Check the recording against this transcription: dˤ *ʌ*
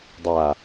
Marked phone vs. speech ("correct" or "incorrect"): incorrect